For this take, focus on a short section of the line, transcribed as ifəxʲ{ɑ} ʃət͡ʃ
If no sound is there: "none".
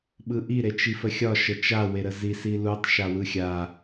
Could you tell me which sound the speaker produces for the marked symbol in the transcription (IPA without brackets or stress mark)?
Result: ɒ